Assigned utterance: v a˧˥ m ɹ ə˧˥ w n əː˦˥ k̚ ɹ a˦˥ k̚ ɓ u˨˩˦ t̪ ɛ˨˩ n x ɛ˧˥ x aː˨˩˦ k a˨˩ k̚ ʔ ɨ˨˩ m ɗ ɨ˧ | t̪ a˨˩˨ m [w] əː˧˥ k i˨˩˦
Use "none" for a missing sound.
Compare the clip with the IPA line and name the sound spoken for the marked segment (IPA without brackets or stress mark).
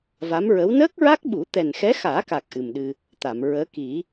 ɹ